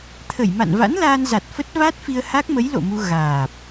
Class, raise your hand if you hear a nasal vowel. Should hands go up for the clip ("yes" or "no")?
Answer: no